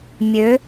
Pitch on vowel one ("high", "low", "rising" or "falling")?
rising